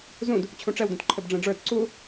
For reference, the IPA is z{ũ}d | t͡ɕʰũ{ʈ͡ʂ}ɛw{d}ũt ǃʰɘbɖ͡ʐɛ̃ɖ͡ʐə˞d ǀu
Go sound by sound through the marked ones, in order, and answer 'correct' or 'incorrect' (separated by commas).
correct, correct, correct